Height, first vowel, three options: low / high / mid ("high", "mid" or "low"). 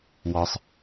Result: low